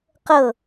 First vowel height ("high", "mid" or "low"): mid